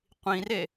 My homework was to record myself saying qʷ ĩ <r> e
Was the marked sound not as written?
no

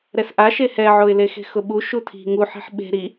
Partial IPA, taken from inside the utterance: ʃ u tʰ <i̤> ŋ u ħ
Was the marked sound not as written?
no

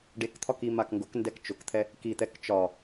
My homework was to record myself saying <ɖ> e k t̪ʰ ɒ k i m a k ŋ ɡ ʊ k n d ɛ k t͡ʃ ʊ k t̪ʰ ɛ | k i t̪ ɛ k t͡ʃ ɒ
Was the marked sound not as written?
no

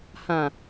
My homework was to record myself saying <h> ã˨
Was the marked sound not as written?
no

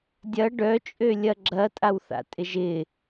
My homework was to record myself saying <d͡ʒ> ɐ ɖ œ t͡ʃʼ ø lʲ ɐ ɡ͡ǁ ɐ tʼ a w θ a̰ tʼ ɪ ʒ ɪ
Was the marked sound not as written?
yes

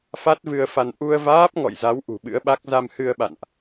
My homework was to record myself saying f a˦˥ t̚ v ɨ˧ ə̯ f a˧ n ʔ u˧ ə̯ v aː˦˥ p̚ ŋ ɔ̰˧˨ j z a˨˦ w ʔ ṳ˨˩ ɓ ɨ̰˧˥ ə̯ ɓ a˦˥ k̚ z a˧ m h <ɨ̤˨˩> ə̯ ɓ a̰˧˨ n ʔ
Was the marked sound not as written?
yes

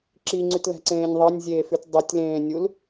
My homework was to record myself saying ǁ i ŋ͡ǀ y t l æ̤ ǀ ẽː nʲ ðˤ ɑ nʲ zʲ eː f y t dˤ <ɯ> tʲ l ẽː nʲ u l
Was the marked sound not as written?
no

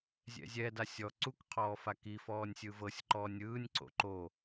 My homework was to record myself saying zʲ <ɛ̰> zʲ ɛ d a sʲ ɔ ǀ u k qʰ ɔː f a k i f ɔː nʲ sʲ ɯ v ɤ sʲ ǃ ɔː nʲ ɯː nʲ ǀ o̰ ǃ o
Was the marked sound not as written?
no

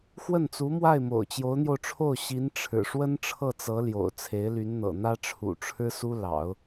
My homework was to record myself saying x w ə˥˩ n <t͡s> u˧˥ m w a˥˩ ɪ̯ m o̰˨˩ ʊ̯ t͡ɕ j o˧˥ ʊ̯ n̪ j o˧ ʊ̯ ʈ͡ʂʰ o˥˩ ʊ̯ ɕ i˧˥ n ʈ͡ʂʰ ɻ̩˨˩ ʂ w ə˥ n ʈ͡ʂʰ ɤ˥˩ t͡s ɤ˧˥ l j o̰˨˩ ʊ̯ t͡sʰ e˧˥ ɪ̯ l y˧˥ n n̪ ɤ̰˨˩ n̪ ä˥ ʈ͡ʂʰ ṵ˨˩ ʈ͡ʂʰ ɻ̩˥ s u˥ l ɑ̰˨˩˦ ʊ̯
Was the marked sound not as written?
no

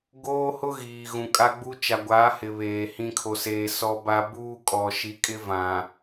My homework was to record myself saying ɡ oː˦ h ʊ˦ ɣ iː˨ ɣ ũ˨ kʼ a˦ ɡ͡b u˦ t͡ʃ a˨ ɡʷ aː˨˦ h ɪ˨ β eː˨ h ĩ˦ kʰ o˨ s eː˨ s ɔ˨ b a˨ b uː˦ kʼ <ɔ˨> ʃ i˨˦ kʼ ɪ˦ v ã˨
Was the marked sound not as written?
no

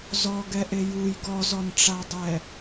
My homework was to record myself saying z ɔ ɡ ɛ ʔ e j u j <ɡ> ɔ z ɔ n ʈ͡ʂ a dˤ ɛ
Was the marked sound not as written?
no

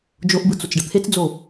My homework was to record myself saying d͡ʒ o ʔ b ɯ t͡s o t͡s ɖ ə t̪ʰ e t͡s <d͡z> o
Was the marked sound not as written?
no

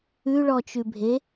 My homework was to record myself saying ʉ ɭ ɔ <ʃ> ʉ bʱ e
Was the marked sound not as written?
yes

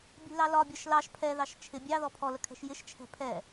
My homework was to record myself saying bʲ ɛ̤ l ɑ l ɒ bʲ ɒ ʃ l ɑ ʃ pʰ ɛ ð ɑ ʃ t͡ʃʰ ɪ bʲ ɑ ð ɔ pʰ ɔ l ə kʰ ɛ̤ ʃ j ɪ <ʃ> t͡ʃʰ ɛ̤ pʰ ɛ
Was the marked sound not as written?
no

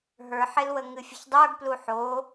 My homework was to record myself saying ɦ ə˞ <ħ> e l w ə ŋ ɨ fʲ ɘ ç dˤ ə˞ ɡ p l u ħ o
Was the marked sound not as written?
no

